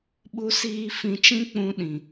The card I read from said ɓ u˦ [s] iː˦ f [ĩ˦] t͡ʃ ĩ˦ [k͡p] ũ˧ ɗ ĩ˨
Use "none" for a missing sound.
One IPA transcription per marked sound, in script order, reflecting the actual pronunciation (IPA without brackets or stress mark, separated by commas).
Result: s, ĩ˧, k͡p